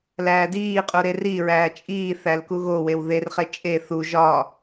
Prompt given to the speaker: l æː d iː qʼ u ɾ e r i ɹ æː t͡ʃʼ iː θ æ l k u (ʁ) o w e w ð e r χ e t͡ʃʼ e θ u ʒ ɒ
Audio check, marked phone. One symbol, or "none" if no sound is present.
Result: ɣ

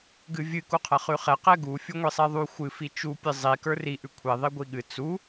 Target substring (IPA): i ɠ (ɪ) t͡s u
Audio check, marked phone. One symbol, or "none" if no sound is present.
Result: ɨ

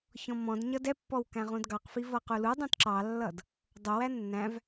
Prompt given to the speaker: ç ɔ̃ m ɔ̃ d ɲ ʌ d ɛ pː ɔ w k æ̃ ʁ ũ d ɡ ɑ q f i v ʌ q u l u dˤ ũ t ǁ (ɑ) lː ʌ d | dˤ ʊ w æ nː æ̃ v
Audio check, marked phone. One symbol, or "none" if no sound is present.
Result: ɑ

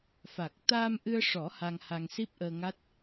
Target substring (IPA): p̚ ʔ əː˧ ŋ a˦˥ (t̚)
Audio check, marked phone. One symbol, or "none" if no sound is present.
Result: t̚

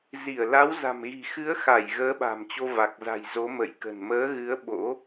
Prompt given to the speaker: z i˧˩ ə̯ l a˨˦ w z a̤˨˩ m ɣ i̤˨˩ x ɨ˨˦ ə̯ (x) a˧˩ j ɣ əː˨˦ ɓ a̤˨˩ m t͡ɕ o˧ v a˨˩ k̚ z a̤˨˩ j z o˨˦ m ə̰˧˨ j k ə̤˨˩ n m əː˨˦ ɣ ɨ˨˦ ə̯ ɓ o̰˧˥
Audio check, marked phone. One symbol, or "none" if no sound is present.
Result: x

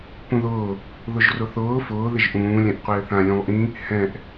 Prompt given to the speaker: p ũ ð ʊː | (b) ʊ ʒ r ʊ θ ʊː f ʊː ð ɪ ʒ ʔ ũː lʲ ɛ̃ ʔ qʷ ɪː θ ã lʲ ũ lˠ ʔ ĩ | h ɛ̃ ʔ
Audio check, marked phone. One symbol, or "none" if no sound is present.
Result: ð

